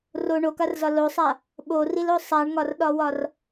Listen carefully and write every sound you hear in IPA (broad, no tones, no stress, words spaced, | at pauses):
ro ɳokarzɒ losˤa | ɓorilo sˤaɳŋɒrɗɒwɒr